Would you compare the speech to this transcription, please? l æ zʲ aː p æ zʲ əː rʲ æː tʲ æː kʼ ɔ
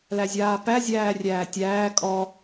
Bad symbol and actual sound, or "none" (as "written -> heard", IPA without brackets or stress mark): əː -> æː